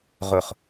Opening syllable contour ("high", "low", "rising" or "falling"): high